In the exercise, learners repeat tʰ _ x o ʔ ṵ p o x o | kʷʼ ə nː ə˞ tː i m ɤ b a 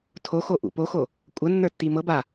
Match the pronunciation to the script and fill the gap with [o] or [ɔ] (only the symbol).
o